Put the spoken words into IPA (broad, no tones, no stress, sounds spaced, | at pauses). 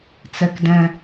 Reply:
t͡s ɛ k d ɛ̃